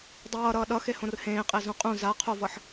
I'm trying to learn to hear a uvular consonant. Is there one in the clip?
yes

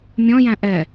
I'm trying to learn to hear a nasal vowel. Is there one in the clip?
yes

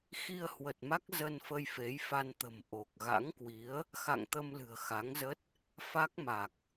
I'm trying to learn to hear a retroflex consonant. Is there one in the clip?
no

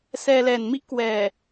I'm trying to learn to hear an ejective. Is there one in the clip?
no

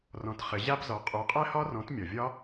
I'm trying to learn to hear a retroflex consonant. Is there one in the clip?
no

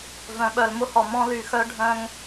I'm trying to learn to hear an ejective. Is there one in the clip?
no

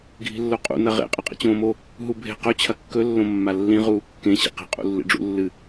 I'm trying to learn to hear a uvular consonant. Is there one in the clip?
yes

